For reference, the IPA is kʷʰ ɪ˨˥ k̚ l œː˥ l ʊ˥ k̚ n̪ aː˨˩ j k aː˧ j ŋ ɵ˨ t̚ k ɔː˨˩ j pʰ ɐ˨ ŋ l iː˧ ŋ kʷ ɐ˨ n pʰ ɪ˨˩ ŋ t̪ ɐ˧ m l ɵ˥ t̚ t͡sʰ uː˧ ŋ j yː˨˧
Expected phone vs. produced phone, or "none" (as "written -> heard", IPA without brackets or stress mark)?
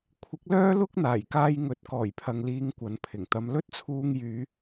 none